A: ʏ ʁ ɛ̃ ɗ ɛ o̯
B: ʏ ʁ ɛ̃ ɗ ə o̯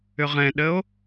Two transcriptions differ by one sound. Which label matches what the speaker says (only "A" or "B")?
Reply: B